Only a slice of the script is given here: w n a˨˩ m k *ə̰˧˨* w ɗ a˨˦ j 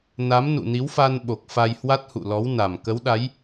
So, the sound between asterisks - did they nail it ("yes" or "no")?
no